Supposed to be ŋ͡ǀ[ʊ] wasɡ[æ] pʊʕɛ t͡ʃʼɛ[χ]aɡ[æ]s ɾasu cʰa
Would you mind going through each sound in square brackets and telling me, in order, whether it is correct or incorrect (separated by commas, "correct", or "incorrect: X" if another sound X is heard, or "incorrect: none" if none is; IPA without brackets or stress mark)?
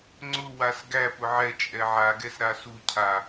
correct, correct, incorrect: ʕ, incorrect: ɛ